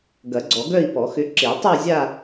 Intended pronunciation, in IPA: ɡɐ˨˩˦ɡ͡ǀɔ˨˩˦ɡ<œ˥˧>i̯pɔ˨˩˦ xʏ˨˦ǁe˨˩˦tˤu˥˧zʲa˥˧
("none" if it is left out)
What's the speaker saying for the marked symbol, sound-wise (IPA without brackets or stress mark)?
œ˥˧